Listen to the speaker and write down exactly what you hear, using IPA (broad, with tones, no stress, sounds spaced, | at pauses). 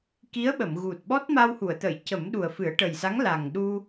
k i˧˥ ə̯ ɓ ə˨˩˨ m ɣ u˨˩ t̚ ɓ ɔ˦˥ t̚ m a˧ w h u˨˩˨ ə̯ t̪ ə˨˩˨ j c ə˨˩˦ m ɗ u˨˩ ə̯ f ɨ˨˩˦ ə̯ ʈ ə˨˩ j s a˧˥ ŋ l a˨˩ ŋ ɗ u˧